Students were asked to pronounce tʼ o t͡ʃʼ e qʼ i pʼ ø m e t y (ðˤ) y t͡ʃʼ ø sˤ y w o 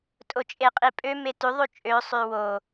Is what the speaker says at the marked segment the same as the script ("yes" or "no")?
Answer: yes